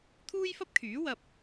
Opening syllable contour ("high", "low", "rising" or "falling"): high